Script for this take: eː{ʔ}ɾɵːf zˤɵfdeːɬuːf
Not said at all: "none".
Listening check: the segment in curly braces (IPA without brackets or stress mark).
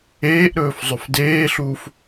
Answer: ʔ